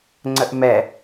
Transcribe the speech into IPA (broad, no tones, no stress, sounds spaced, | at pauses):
ŋ͡ǀ ə ʔ m ɛ